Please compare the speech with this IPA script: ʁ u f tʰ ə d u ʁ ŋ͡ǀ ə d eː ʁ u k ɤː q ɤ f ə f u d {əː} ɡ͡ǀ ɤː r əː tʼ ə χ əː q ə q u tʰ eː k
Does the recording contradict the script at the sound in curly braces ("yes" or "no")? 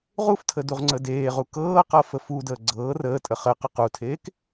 no